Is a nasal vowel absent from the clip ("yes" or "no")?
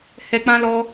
no